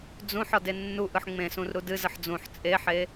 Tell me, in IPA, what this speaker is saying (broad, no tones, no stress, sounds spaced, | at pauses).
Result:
d͡z ũ ħ ɒ d e nː u ʔ ɯ ħ ŋ͡m ẽ s ũ r ɾ u d ɨ z ə ħ d͡z ũ ħ t͡sʼ e ħ e